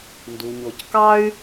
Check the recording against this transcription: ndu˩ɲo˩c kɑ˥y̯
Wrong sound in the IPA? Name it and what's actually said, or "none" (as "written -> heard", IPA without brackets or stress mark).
none